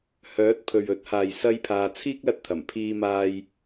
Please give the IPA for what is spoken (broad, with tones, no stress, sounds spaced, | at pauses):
h œː˨˥ t̚ pʰ ɵ˨ ɥ ɵ˨˥ t̚ h aː˨ j s ɐ˥ j pʰ aː˧ t͡sʰ iː˥ k̚ l ɐ˧ t̚ t̪ʰ ɐ˨˩ m pʰ iː˧ m aː˧ j